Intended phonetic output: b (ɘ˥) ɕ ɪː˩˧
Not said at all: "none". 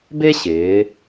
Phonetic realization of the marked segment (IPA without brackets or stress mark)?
e˥